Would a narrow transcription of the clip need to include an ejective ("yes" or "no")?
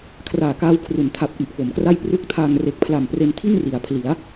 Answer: no